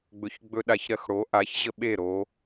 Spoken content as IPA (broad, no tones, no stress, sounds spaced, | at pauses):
ɡ͡b ɵ ç ɡ͡b ɵ ɗ a ç ɾ ɜ x ɽ o ʔ a ç ʑ ə ɓ e ɾ o